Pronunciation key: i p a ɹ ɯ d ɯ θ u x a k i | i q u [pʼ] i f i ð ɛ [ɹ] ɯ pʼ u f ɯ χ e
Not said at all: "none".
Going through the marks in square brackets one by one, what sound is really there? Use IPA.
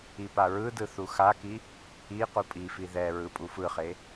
pʼ, ɹ

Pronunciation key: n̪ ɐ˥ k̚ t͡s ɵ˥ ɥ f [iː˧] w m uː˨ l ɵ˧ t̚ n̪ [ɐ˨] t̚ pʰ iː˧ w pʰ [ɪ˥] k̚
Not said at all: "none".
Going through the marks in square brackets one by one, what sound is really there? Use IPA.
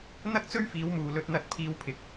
iː˨˧, ɐ˧, ɪ˨˥

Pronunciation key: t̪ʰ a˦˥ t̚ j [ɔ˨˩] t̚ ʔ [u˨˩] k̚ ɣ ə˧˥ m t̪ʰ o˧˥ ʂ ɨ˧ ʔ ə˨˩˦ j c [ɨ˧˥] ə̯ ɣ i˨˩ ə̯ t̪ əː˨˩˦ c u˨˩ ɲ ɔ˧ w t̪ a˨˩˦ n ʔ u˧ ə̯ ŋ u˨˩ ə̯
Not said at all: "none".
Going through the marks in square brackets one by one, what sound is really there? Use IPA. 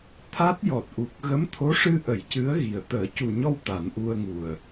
ɔ˨˩, u˨˩, ɨ˧˥

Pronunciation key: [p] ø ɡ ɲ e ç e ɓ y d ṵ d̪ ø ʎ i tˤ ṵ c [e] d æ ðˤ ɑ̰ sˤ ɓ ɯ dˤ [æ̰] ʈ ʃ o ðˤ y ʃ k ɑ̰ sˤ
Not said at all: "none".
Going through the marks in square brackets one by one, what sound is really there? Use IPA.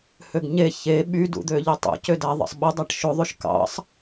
h, ø, æ

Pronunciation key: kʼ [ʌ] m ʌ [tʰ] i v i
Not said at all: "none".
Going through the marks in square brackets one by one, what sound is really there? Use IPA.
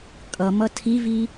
ʌ, tʰ

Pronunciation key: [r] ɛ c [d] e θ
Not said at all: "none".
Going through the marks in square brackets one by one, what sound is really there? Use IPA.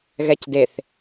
ɣ, d

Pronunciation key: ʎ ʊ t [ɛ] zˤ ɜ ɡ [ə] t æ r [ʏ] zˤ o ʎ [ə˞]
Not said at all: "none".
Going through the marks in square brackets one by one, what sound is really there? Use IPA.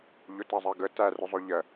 ɜ, ə, ʏ, ɜ

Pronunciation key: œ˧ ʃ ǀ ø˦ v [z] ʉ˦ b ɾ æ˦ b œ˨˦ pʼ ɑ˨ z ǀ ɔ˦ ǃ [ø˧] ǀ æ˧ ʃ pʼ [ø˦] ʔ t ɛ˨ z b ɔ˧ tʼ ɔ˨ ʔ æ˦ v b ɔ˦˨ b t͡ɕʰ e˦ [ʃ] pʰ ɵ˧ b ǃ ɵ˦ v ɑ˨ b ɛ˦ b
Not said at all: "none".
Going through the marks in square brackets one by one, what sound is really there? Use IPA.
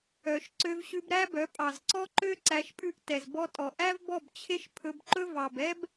ɕ, ø˦, ʉ˦, ʃ

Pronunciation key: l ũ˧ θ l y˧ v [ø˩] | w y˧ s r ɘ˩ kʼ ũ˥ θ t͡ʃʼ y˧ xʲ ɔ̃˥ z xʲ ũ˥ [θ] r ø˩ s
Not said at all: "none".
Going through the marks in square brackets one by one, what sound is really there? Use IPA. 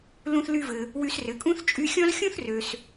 ɘ˩, θ

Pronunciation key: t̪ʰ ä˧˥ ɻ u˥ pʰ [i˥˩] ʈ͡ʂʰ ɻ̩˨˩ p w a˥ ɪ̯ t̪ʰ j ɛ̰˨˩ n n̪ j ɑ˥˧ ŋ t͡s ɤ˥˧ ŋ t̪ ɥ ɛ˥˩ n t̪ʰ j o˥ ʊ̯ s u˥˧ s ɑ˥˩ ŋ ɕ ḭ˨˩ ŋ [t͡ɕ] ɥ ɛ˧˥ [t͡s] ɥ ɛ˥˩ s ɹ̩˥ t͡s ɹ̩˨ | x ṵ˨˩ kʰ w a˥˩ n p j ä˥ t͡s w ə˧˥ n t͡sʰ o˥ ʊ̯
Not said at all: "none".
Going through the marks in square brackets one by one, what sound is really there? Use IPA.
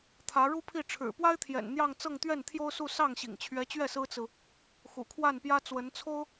i˥˩, t͡ɕʰ, t͡ɕ

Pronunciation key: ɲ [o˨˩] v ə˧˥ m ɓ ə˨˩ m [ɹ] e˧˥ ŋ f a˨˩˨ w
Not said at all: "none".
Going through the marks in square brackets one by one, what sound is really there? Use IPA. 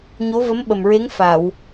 o˧˥, ɹ

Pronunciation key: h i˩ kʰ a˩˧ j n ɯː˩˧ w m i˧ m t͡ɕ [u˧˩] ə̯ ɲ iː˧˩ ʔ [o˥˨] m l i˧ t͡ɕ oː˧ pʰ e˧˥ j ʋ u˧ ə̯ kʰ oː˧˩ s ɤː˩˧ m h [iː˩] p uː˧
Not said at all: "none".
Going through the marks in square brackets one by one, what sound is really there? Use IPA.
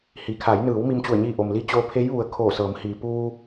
u˧˩, o˩, iː˩

